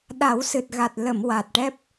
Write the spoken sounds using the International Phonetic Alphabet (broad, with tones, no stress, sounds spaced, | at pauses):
ɗ a˨˩˦ w s ɨ˨˩ t̚ ɣ a˨˩ t̚ l ə˨˩˨ m w a˨˩ t̚ ʈ ɛ˦˥ p̚